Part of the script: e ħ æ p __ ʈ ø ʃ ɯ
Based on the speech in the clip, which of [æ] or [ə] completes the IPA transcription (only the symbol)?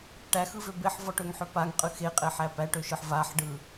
æ